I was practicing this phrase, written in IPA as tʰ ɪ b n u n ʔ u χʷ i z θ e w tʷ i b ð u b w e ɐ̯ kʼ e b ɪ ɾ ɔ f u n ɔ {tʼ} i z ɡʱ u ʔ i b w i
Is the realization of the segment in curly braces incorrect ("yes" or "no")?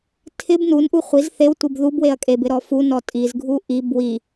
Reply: no